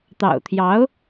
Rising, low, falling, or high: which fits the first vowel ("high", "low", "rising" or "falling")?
low